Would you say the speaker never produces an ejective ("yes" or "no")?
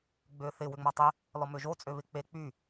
no